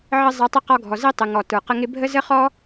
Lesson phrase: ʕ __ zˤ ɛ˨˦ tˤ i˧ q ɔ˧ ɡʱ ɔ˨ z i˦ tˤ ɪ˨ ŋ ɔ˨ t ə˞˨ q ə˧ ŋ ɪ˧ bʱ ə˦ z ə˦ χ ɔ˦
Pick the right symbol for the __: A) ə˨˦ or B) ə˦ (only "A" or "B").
B